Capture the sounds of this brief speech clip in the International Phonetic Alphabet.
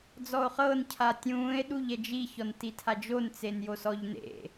d͡z ɔ o̯ χ ɤ n cʰ a tʲ ũː e̯ ɗ u ʎ ɛ d͡ʒ i ç ɔ n t i tʰ a d͡ʒ o n t͡s e n j o s ɔ ʎ n ḛ

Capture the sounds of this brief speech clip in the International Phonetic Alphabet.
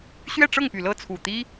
ɕ ɥ ɛ˥˧ ʈ͡ʂ ɤ˥˩ ŋ p y˨˩ l ɤ˥˩ t͡sʰ u˨˩ t̪ i˥

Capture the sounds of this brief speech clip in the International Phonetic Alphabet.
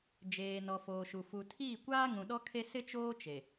d͡ʒ eː˨ n ɔ˨ f oː˨ ʃ u˨ f u˨ tʰ iː˦˨ kʷ aː˦ ŋ ũ˨ ɗ ɔ˦ kʰ e˦ s ɪ˦ t͡ʃ oː˦ t͡ʃ e˨

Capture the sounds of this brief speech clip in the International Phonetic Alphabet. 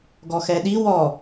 ɡ ɔ x ɛ ɗ i w ɔ

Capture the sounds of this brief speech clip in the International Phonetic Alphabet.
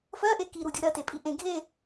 f ɜ ʔ e k i ɾ u dʲ u ɾ ɜ t e pʼ i ʔ ẽ ɡʱ e

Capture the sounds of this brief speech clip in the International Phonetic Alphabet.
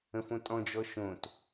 ə̃ f õ tʼ ɔ̃ d͡ʒ ɔ ʃ õ t

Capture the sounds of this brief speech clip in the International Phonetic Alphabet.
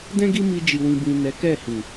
d ɛ̃˦ ɡ i˦ m i˧ d͡ʒ i˨ w ĩ˨ b ĩ˨ n ɛ˨˦ k ɛ˦˨ h ĩ˨

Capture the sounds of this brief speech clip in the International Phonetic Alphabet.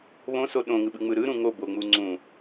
β õ s o ɗ õ ŋ ɯ ɓ ɯ ŋ͡m ɯ ɾ ɯ ɾ ũ ŋ o b o ŋ͡m u ŋ͡ǀ ũ

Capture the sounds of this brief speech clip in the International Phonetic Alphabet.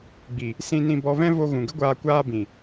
ɡ͡b i˨ | s ĩ˧ n ĩ˧ b ɔ˧ v ɛ̃˦ v o˧ ɣ ũ˨ ɡ ə˦ ɡʷ aː˧ kʷ aː˧ b ĩ˨

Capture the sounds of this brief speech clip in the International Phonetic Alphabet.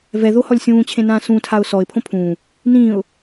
v ɛ ð o h ɔ lʲ sʲ ũː t͡ɕʰ ẽ n ãː s ũ tʰ a ʊ̯ s ɔ ɪ̯ pʰ õ pʰ ũː | n ĩː ʊ̯

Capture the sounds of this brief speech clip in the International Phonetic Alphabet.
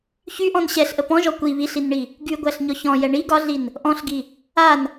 ç y ʔ ɔ̃ n ɕ ɛ ɬ ʔ ə p ɔ̃ ʒ ɔ kʷ i β i ɬ i n ɳ i | ɡ y ɡʷ æ ɬ ɲ ɔ ç ɔ̃ j ɛ ɳ i ɡ ɒ ɮ i n | ʔ ɔ̃ ɬ ɡ i | a n

